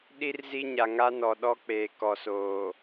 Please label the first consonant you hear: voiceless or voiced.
voiced